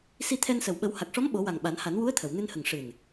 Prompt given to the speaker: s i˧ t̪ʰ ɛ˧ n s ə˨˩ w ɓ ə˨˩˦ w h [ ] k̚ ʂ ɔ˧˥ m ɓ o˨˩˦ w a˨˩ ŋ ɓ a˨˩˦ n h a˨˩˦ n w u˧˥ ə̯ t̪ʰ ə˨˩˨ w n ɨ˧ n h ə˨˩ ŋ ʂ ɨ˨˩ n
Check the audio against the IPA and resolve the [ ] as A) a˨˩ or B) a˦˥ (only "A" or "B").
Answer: A